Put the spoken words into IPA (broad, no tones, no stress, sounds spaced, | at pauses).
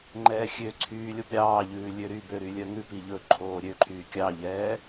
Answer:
ŋ͡ǃ ɛː xʲ ø ǀʰ yː lʲ o p ɾʲ ɑː ʎ ʉː lʲ ø ɾ y b ø ɾ y lʲ œ ŋ ʉ p i ʎ ɵ ǃʰ oː ɾʲ ø ǃʰ yː kʲ ɑ ʎ ɛː